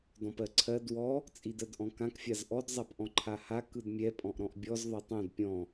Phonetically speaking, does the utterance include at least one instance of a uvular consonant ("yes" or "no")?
no